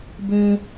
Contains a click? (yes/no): no